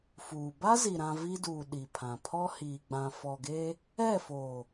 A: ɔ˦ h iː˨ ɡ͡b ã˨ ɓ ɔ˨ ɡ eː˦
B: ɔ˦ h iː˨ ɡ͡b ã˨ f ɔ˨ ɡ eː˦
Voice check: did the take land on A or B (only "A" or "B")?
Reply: B